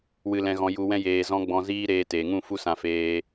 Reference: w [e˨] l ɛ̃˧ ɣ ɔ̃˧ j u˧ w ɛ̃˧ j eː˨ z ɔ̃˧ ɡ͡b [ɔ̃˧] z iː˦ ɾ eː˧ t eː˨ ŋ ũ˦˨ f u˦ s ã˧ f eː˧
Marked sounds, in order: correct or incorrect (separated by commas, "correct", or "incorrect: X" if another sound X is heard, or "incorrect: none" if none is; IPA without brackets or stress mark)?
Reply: incorrect: ɨ˨, correct